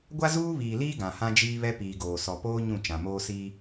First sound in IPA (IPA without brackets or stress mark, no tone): ɡʷ